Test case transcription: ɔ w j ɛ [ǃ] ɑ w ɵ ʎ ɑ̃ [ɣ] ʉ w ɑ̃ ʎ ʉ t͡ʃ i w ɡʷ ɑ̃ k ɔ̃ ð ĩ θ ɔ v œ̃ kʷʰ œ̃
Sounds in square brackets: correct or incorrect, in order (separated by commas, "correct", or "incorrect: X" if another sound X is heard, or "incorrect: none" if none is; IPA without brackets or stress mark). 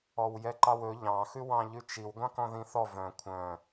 correct, incorrect: x